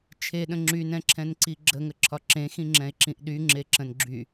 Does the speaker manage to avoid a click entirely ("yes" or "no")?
no